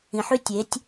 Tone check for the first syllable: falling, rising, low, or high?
low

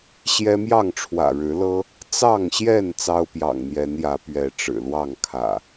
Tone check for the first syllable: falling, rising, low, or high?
high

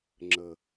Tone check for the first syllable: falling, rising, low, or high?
low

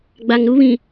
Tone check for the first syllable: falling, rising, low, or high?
low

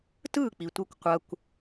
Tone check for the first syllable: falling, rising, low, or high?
falling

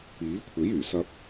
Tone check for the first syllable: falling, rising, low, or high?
rising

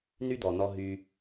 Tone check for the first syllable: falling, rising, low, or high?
high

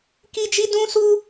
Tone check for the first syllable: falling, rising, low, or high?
high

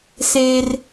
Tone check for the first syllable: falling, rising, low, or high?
high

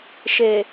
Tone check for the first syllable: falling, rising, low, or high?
low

